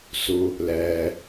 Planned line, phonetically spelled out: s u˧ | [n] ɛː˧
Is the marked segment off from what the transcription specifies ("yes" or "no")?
yes